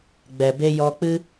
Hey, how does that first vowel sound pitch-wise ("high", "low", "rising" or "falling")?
low